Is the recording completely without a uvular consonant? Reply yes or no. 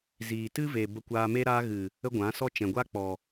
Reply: yes